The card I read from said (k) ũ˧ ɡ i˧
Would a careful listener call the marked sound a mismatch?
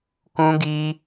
no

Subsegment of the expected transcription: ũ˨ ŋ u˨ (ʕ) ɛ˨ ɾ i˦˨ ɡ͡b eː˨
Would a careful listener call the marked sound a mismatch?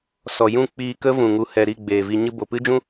yes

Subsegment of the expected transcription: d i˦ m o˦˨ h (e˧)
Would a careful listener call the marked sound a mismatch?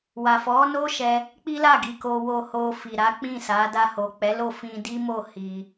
yes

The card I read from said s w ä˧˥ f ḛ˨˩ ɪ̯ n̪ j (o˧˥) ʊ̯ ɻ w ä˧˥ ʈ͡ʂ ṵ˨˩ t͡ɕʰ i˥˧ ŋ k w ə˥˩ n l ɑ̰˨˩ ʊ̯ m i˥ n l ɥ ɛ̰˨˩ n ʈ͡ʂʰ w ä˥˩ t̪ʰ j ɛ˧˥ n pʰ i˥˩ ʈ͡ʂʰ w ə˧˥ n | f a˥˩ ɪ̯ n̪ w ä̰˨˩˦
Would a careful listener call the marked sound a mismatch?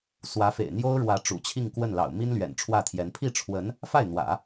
yes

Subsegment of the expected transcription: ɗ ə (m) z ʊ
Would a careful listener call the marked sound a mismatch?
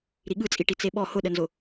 yes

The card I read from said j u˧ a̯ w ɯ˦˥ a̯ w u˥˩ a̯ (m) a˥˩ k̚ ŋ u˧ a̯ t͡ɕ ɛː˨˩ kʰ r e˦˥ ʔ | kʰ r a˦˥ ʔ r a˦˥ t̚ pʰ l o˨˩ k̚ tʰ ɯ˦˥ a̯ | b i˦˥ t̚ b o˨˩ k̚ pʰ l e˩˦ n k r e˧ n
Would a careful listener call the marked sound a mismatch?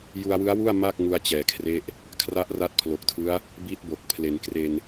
no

